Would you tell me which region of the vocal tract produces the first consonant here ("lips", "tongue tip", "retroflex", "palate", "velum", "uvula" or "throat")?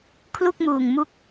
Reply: velum